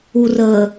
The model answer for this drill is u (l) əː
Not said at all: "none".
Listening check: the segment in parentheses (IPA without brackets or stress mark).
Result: r